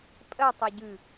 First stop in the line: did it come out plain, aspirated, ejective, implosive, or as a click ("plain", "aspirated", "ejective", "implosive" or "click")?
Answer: ejective